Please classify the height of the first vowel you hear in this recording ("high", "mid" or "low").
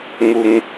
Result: high